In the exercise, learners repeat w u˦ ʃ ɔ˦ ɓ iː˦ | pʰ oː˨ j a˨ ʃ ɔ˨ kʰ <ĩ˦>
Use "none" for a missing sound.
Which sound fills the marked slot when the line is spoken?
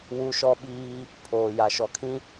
ĩ˦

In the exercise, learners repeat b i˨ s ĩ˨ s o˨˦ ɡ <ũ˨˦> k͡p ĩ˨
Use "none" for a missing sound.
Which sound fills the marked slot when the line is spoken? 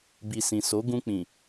ũ˧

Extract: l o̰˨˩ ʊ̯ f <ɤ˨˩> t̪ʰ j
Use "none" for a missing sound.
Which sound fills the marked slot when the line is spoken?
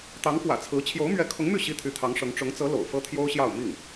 ɤ˥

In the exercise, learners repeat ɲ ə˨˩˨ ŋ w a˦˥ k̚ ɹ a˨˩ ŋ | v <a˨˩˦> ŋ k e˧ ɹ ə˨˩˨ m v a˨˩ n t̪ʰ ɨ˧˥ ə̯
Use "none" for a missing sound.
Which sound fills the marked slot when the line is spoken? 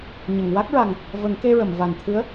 ə˨˩˦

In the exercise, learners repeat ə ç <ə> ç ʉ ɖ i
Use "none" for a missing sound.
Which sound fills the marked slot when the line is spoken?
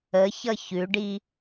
ʌ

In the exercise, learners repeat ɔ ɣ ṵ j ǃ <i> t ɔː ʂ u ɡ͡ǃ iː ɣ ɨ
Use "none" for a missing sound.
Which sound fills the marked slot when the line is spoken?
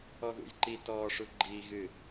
i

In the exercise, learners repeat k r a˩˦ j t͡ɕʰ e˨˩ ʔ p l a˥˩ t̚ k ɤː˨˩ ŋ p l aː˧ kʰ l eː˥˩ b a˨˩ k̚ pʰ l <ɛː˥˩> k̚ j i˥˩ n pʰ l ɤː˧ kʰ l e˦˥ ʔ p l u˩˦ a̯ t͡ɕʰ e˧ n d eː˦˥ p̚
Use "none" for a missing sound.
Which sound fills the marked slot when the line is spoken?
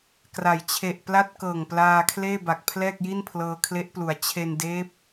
ɛː˥˩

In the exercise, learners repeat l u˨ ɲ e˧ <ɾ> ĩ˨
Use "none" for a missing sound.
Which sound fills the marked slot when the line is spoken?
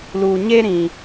ɾ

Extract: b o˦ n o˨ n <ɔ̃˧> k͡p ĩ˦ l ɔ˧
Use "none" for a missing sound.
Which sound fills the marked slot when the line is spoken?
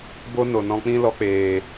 ɔ̃˧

